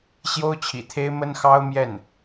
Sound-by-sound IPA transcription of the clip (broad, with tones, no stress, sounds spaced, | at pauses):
ɕ j o˥ ʊ̯ t͡ɕʰ ḭ˨˩ t̪ʰ e˥ ɪ̯ m ə˥ n x ɑ˥ ʊ̯ m j ɛ˥˩ n